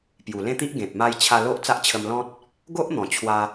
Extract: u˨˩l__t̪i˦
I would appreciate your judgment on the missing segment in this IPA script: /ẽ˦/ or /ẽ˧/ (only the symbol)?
ẽ˦